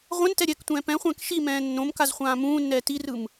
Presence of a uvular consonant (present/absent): present